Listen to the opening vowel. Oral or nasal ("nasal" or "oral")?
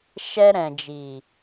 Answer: oral